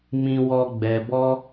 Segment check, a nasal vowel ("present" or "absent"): present